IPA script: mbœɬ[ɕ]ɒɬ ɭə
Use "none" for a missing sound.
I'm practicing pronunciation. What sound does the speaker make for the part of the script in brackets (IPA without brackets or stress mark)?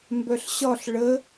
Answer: ɕ